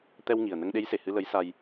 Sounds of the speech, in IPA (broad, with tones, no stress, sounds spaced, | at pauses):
t̪ ɛ˧ w ŋ i˨˩ ə̯ n ə˧ ŋ ɗ e˧˥ j s e˨˩˨ h ɨ˧ l ə˧˥ j s a˧ j